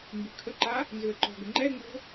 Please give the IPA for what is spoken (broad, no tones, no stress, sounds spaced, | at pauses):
m b ʉ kʰ ə ǃ a | n z ʏ ə̯ ǃ ɔ̤ ɡ ə ŋ͡ǃ ɛ ŋ͡m o̤